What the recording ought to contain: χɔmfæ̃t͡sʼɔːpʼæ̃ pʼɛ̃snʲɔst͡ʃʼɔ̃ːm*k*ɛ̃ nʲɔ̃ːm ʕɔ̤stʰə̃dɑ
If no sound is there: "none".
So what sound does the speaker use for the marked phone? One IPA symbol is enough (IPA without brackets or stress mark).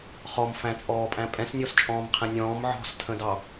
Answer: qʰ